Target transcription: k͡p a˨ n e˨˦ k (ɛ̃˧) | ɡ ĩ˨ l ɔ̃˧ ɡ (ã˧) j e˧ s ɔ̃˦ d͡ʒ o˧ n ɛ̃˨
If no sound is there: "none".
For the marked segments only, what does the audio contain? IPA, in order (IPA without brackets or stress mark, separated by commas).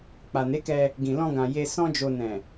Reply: ɛ˧, ã˨